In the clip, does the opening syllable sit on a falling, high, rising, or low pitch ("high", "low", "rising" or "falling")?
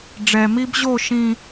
low